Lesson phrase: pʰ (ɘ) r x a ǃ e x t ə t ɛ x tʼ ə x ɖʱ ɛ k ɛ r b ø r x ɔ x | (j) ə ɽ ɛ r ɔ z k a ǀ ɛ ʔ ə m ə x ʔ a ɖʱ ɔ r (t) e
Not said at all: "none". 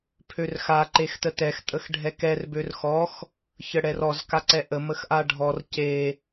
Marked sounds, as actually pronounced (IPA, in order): ø, ç, c

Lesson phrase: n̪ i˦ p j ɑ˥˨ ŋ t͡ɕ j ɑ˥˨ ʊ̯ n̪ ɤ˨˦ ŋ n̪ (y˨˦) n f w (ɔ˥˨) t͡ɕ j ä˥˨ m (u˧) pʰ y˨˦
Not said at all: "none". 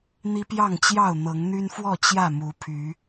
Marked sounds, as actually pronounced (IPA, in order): y˦, ɔ˥˨, u˨˦

